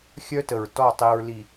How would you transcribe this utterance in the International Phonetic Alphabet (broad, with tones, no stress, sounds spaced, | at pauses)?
xʲ œ˦ t ə˨ ɹ t ɔ˦˨ tˤ i˨ ɹ l i˨